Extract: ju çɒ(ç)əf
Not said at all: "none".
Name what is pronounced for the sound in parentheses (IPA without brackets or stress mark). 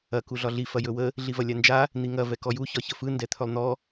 ç